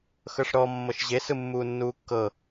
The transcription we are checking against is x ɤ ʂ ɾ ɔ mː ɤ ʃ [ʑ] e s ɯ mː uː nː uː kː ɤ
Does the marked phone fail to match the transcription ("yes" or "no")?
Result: no